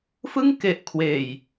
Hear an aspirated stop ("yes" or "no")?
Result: yes